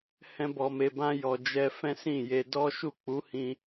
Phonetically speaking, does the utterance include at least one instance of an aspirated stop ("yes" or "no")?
no